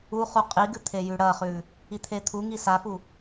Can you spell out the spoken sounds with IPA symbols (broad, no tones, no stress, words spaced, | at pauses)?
uχu qʼiɡɨ t̪ʰejʉɽɐχʉ | it̪ʰet̪ʰuŋi safu